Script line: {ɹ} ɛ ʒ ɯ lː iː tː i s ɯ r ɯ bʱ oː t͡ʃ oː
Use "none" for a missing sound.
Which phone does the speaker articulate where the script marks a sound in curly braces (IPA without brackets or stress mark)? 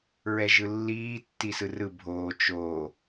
ɹ